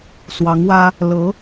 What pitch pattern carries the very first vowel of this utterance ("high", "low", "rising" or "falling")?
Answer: rising